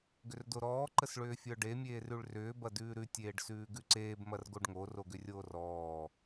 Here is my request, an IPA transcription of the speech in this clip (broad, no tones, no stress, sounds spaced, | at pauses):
ɡ ʏ r d o ɾ ɔː ǃ ə s ɭ ʏː fʲ ə˞ ɖ e mʲ eː r ʉ ɭ r ʏː b ɐ d ʉː ɾ ʉ tʲ eː ɖ s ʉː ɡ ʉ ǀ eː b m ɐ r ɡ o ɖ ŋ o r o ɡ ʏ rʲ oː r ɔː